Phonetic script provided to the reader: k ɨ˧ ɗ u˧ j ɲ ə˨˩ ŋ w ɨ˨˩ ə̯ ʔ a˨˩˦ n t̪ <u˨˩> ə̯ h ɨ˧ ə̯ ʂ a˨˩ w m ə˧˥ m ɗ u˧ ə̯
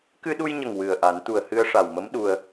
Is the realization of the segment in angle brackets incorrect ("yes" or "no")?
no